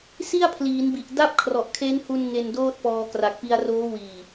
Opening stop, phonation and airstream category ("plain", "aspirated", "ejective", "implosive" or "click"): aspirated